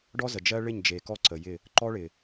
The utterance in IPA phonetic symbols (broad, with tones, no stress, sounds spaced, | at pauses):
ɖ ɔ˦ z ə˨ d͡ʒ ɜ˦ ɭ ɪ˦˨ ɲ d͡ʒ e˨ k ɔ˦ ǀ ə˨ j ɪ˦˨ | ǃ ɔ˦ ɭ ɪ˨